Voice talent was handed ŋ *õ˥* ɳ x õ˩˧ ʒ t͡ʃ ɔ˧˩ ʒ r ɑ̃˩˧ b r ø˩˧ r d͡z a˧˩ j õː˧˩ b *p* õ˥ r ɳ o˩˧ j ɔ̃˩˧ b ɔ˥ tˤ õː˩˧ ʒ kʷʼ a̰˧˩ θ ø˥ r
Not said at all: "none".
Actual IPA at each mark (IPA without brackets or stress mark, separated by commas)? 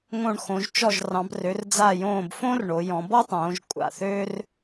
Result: õ˧˩, f